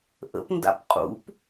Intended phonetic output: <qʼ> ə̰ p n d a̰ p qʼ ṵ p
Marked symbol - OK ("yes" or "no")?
no